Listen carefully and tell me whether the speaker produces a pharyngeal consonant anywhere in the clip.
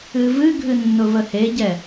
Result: no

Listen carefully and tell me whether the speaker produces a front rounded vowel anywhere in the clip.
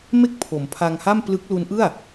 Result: no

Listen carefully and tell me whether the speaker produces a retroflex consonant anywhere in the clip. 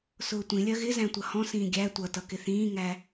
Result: no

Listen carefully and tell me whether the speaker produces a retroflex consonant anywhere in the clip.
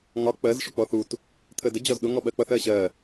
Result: yes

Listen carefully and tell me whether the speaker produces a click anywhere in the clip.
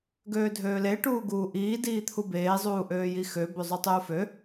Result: no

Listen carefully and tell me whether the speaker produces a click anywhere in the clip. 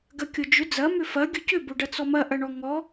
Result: no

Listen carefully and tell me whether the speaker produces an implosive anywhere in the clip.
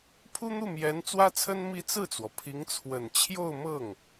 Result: no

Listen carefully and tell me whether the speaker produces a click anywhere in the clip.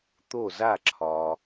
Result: yes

